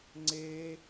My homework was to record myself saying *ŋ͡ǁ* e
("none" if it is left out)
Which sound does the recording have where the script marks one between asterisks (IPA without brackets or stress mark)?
ŋ͡ǀ